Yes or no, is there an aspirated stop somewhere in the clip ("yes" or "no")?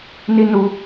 no